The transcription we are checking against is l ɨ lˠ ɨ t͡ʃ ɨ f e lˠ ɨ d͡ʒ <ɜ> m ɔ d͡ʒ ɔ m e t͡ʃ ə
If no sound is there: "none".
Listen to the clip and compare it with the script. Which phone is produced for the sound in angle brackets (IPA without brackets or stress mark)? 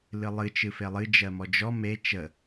ɜ